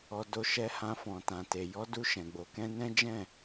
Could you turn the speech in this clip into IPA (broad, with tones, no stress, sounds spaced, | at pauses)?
ɔ˧ d o˧ ʃ ɛ˧ h ã˧ f ɔ̃˨ t ã˨ t e˨ j ɔ˨˦ d u˧ ʃ ɛ̃˨ ɡ͡b o˧ k ɛ̃˦ n ɛ̃˦ d͡ʒ ɛ̃˦˨